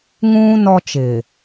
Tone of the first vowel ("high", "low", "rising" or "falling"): high